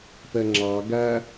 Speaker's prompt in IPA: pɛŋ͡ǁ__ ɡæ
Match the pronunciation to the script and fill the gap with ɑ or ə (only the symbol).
ɑ